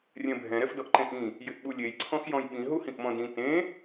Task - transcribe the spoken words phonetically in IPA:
rʲ ɛ̃ bʱ ɛ̃ ɾ ɛ f d ɔ ʔ ǃ ẽ ʔ ĩ | j ɪ ʔ ɓ u lʲ e j ǀʰ ɔ̃ x j ɔ̃ j ɓ ĩ ɦ u h ĩ ʔ m ɔ̃ d ĩ t ẽ

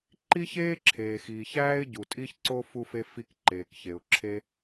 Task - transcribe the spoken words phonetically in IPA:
ǃ i˥ ç eː˥ ǁʰ eː˩ x iː˩ ç æː˥ ɪ̯ ɟ u˩ tʼ i˥ ç ǀ o˥ f u˥ f e˥ f i˥ k ǃ eː˩ k ç e˩ ʊ̯ ǁʰ e˥

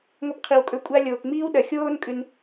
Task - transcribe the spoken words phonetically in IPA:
ŋʷ ɐ˧ p qʰ i˨ w kʼ ɵ˧ kʷʼ a˧ lʲ oː˨ k ŋ͡m iː˦ w ɗ ɐ˨ xʲ oː˦ n kʼ ʉ˧ n

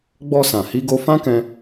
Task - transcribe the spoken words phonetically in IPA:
ɡ͡b ɔ˧ s ã˨ h i˨˦ ɡ o˧ f ã˦ k ɛ̃˧

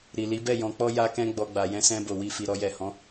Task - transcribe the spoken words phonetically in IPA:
ɾ i˨ l i˨˦ b ɛ˦˨ j ɔ̃˧ k͡p ɔ˦ j a˦ k ɛ̃˦ ɡ͡b ɔ˧ ɡ͡b a˨ j ɛ̃˧ s ɛ̃˧ b o˨ w i˧ f i˨ ɾ ɔ˧ j ɛ˨ h ɔ̃˨˦

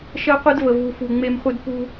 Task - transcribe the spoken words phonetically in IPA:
ʃ ɜ˦ qʷ e˦ d v ə˨ v u˨ f u˨ ŋ͡m e˦ m χʷ ɨ˦ d p u˦

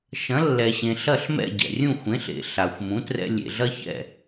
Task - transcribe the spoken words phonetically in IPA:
ʃ ɐ̃˩˥ lː ɛ˩ ɕ ẽ˩ ɬ ɐ˥˩ ɬ m ɛ̰˥˩ ɟ ɛ̰˩ rʲ ũ˥˩ xʷ ẽ˩˥ ɬ ḛ˩ ɬ a˩ xʷ m ũ˩˥ t r ɛ̰˧ lʲ ḛ˩ ɮ ɐ˥ ç ɛ̰˥˩

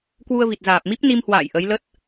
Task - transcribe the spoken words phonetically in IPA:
k w u˧ ə̯ v i˨˩ t̚ z aː˨˩ p̚ m i˦˥ p̚ n i˧ m h w a̰ː˧˨ j ʔ ə˨˦ j l ə˦˥ t̚

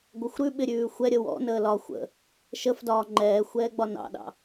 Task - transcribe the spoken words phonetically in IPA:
ɡʷ ə xʷ ɾ ʉ ɓ ɪ ɾʲ ʉː xʷ ɛ ɾʲ ə w ɔ̰ n əː l ɒ xʷ ə̰ | ʃ ə f d ɒː ŋ͡ǃ ɛː xʷ ɛː ɡ͡b ɒ n ɑ̰ ɗ ɑ̰

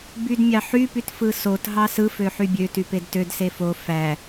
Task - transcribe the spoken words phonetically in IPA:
b y d mʲ ɑ ħ y p y t f ɯ s o t ɦ ɑ s ɯ f ø ħ y bʲ ø t y p e d t ø d s e f o f æ

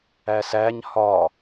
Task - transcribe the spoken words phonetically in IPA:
æ s æ ɲ h ɒ

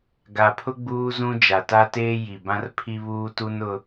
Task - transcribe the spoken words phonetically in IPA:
ɡ a˨ pʰ ʊ˦ ɡ͡b uː˦ z ũ˦ d͡ʒ a˨ t a˦ t eː˦ j i˨ b ã˦ r pʰ i˦ β uː˦ t u˦ n ʊ˦

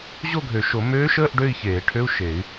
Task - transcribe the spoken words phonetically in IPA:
ʑ o˥˧ ɡʱ ø˨˩˦ ʃ o˨˩˦ m øː˧˥ ʃ əː˧˥˧ ʔ ɖ ø˥˧ i̯ ç eː˨˩˦ ʈʰ ø˧˥˧ u̯ ʃ e˨˩˦ y̯

